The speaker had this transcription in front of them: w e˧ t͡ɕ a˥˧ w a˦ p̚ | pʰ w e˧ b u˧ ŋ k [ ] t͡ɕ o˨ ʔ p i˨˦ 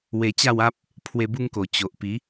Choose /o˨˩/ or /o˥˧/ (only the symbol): o˨˩